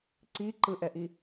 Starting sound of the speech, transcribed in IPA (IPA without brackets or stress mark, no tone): ǀ